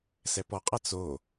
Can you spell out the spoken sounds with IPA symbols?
s ɛ p ɔ qʼ a t͡s o

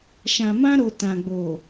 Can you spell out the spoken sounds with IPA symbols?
ʃ ã˨ m ã˧ ɾ o˨ t ã˨ ɡ͡b o˨

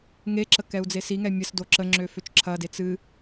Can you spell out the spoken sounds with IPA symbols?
ŋ e ǁ ə k ɛ u̯ d͡z e s i ŋ ɛ mʲ ə s d o ǁ ə ŋ͡ǁ ø f ø t͡ʃ ǁʰ ɐ d e t͡s ɨ

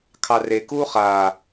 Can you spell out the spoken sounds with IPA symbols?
kʰ ɑ r e k uː χ aː

